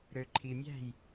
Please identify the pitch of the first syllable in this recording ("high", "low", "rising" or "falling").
low